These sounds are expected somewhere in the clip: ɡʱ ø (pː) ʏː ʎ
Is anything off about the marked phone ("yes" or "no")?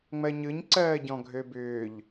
yes